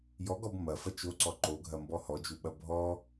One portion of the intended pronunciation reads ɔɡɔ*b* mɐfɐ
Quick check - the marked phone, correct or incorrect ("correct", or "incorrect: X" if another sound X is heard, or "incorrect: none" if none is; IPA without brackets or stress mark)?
correct